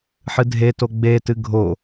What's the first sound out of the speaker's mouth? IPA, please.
ħ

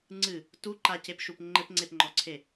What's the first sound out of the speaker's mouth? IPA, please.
ŋ͡ǀ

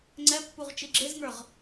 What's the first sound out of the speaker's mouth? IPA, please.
ŋ͡ǀ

